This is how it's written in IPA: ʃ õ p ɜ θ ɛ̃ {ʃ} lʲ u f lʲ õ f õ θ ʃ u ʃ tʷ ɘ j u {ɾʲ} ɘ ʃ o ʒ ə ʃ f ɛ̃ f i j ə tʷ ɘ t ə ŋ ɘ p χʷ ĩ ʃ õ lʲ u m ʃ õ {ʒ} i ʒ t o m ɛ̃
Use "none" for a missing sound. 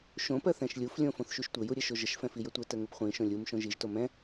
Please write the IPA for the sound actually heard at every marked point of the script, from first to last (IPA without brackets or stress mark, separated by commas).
ʃ, ɾʲ, ʒ